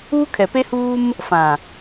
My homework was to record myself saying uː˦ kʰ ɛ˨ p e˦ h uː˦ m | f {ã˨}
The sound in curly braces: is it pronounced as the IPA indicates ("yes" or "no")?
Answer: yes